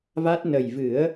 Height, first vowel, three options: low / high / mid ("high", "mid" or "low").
low